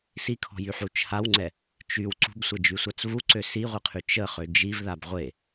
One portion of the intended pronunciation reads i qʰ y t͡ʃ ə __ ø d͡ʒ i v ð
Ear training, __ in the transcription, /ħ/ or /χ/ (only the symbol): χ